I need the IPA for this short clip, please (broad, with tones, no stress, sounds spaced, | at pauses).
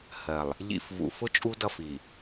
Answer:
h ɜ˨ lˠ | ʎ ḭ˨ f v ṵ˨ f ʊ˦ t͡ʃʼ u˦ d ʌ˦˨ f i˨